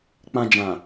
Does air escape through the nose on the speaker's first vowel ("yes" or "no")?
yes